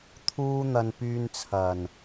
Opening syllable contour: high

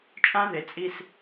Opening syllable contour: high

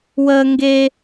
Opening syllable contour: high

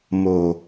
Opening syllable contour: low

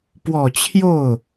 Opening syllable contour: low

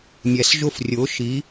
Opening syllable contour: low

